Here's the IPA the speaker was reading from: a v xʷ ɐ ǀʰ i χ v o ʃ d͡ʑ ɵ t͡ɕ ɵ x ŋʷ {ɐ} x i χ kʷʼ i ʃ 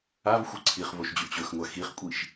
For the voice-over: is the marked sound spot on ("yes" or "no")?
no